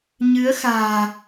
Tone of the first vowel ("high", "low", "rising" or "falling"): rising